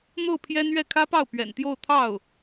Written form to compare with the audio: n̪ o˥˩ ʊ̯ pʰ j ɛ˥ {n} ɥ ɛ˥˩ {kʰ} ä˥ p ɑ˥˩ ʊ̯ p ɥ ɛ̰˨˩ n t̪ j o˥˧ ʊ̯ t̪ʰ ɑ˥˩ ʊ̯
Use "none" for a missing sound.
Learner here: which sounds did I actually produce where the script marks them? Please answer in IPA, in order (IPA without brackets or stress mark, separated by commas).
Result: n, kʰ